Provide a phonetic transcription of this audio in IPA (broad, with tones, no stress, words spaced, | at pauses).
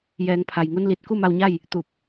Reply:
jɛː˩˧ŋpʰa˩jŋu˧n li˧˩t̚ ku˥˨ma˧wɲa˥˨j | t̪u˧˩p̚